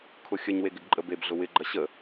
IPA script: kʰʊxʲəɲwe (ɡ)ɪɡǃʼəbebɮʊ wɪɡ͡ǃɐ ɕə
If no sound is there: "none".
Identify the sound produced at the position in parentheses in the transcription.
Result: ɡ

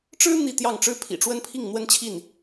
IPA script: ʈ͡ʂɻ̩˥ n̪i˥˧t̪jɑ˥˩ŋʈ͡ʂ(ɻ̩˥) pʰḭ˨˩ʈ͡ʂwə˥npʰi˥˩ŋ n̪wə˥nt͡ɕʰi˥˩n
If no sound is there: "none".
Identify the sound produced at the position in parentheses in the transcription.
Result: ɻ̩˥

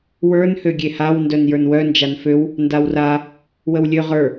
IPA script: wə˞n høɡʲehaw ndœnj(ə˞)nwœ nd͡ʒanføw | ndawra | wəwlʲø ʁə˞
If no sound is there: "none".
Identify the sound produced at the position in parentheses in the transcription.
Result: ə˞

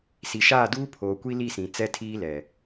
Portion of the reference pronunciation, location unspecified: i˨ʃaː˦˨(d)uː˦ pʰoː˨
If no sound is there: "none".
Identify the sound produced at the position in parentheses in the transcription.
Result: d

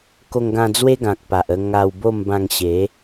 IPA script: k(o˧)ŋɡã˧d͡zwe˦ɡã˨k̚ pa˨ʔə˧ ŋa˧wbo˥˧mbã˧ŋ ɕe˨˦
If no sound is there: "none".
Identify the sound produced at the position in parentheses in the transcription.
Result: o˧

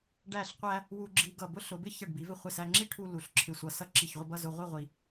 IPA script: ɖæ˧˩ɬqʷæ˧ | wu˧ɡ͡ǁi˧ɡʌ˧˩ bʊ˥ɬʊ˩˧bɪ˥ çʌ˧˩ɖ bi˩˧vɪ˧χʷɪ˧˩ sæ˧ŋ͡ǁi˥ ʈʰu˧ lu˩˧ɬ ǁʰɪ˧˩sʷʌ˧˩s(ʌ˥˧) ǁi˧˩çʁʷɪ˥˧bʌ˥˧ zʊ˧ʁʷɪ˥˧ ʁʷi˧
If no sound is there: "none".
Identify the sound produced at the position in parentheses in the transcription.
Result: ʌ˥˧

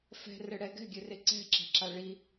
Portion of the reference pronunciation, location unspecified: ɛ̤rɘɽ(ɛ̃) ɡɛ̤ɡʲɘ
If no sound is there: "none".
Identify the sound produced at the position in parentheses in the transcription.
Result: ɛ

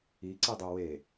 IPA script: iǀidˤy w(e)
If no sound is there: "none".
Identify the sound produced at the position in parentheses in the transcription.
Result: e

